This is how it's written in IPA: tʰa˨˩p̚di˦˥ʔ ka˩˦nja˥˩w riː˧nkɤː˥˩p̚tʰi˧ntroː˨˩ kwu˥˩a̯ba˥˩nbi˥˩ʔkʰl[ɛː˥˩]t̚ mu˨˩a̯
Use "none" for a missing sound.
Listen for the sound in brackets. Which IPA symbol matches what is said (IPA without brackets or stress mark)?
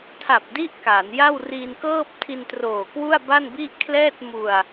ɛː˥˩